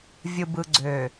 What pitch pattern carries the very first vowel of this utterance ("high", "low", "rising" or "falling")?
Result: low